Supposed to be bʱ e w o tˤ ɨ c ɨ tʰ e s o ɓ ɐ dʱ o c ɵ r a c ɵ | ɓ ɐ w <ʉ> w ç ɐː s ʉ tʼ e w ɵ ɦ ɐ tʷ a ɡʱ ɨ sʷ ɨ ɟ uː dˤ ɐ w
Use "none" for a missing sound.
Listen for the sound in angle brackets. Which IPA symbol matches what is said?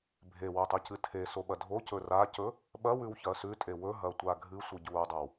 ʉ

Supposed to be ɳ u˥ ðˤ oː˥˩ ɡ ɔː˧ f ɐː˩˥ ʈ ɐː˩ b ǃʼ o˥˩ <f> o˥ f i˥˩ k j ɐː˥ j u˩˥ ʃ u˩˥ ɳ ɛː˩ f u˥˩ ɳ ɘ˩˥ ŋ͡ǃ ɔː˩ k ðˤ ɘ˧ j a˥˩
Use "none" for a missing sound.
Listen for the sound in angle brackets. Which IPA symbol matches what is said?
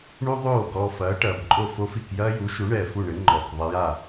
f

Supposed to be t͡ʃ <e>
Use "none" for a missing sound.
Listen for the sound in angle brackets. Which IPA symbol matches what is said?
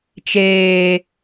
eː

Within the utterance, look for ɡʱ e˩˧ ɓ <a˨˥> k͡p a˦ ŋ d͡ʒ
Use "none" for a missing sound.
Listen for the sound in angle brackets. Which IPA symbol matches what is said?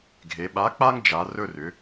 a˨˥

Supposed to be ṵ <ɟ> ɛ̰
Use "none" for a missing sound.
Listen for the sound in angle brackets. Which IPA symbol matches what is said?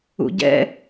ɟ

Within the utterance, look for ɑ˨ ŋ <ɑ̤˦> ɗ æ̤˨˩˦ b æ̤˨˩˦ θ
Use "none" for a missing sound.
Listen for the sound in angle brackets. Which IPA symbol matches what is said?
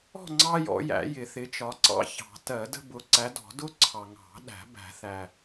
ɑ̤˨˩˦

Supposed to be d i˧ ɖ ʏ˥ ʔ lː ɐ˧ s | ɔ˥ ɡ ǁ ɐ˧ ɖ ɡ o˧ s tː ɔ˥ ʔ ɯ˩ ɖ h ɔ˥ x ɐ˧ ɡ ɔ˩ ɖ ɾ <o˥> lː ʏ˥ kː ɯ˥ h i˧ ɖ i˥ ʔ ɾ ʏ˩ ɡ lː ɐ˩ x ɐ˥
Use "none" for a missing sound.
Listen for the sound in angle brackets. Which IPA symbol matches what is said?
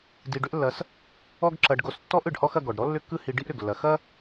ɔ˥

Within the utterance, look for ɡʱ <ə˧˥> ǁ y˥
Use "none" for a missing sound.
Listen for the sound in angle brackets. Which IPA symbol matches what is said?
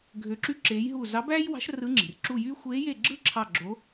ø˧˥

